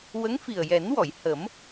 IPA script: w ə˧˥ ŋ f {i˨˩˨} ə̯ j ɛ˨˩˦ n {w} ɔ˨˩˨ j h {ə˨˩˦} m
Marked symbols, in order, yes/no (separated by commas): no, yes, yes